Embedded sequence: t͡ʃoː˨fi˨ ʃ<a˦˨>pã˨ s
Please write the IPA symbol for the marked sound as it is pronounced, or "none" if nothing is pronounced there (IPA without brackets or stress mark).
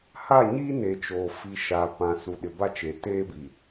a˨